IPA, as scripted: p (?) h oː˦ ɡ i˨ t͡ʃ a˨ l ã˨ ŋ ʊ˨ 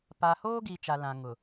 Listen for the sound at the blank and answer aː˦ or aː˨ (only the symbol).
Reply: aː˨